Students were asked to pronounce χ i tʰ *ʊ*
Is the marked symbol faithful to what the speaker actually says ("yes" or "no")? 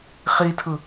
no